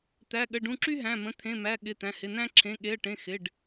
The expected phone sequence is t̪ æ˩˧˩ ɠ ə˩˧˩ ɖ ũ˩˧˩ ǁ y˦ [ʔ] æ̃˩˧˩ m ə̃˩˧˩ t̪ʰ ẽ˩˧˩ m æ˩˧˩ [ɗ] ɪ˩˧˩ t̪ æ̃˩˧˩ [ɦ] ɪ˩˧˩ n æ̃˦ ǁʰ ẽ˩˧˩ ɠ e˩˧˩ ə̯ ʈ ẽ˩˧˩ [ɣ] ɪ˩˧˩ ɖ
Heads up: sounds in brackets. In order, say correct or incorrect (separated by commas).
incorrect, incorrect, incorrect, incorrect